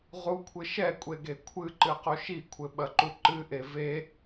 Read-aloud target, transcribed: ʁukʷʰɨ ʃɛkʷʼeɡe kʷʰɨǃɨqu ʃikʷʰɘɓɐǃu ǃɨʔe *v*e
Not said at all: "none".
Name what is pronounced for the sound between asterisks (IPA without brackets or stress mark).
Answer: v